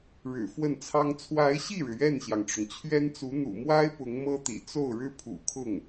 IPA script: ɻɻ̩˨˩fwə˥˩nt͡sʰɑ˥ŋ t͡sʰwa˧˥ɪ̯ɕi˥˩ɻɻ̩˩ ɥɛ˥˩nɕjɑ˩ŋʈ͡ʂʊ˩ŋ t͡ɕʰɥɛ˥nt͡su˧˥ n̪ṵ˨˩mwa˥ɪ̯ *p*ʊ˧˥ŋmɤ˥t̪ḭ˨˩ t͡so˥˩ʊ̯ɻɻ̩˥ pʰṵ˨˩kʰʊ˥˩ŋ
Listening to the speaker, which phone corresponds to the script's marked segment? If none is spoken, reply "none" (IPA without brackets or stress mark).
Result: p